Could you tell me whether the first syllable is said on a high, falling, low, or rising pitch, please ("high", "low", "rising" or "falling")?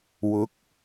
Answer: rising